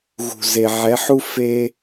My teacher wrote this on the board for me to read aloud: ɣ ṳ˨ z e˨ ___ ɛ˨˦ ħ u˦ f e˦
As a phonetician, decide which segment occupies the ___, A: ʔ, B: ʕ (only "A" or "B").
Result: B